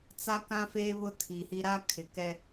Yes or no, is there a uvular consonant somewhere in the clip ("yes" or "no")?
no